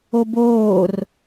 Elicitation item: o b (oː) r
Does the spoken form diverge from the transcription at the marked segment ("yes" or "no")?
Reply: no